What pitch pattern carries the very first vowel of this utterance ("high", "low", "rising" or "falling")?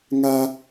high